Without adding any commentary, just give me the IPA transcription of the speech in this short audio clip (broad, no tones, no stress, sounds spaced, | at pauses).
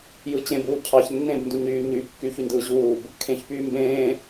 j ɯ t͡ɕ ẽ b uː cʰ ɑ ç nː ẽ b n d u ɲ yː ɲ yː p kː yː ç y n d ɯː ʑ uː b | kʰ ẽ ç p yː m b ẽː